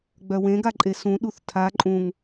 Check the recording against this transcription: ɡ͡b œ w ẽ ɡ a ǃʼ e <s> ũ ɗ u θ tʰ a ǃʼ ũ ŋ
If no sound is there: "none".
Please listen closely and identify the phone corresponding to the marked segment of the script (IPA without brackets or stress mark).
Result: s